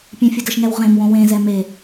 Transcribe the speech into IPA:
pʲɛ̃fʲʊdəʃŋɛw ʁẽm wõwẽzɛ me

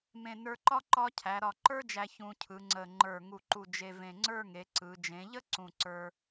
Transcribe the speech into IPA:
mẽ˧˩nə˞˧ǃɒ˥˧ ǃɒ˥ cʰæ˩˧ɾɒ˧˩ǃə˞˥d͡ʒæ˧ çũ˧ cʰɯ˩˧ŋ͡ǀə˧˩ ŋ͡ǃə˞˧˩ ŋu˧˩ǃu˧˩ d͡ʒe˧ vẽ˧˩ŋ͡ǀə˞˥˧ŋe˩˧ ǀɯ˩˧ d͡ʒẽ˩˧ʎə˥ ǀũ˧˩ǀə˞˧

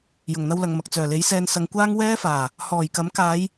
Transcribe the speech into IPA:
jʊ˨˩ŋn̪ɐ˧wlɐ˨ŋmɐ˨k̚ t͡sœː˨˩le˨˥jsɛː˧n sɐ˨˧ŋkʷaː˥ŋ wɛː˥faː˨˩ | hɔː˨˩jkɐ˨˥mkaː˨˧j

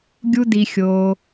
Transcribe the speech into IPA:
ɡʲu˦di˧xʲoː˧

